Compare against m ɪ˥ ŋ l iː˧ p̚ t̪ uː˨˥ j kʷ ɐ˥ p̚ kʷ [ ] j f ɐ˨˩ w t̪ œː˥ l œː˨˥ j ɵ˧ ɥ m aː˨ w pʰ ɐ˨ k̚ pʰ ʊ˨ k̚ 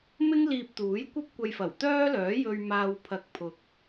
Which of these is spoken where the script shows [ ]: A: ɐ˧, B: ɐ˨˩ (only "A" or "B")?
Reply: A